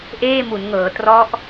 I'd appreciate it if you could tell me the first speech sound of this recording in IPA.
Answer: ʔ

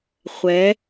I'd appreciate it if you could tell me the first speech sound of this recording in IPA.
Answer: χʷ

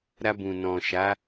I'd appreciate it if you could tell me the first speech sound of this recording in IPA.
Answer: ɾ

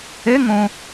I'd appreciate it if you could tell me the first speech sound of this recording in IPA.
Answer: e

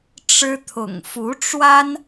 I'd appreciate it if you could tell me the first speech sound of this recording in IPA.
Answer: ʈ͡ʂ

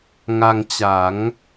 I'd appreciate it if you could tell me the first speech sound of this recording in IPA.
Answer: ŋ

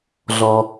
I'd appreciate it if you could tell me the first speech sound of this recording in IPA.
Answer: ɮ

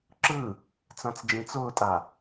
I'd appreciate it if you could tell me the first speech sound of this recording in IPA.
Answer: ǁ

